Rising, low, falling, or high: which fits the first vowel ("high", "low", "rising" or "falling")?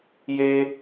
high